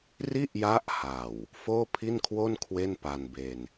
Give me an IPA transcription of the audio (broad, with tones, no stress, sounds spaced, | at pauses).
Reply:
r i˥˩ ʔ j a˦˥ ʔ h a˨˩ w | f oː˥˩ pʰ i˥˩ n kʰ w o˥˩ n kʰ w e˥˩ n p a˧ n b e˧ n